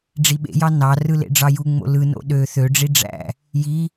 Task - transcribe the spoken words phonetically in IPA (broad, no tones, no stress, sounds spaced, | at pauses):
ɖ͡ʐ i ɓ ḛ j ɑ n ɑ r ɯ l ḛ ɖ͡ʐ ɑ j u ŋ͡m o̰ l ɯ n o̰ ɗ ø θ ø ɖ͡ʐ i ɖ͡ʐ æ̰ | j i